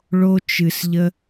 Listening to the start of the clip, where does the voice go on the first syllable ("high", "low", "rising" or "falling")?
high